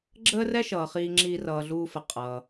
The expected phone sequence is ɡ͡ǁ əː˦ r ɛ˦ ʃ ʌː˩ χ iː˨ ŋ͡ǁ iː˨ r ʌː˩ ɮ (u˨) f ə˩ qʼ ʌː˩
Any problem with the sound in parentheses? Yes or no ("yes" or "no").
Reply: yes